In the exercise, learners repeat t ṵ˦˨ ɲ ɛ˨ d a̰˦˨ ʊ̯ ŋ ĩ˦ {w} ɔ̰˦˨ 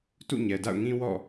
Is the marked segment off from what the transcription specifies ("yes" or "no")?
no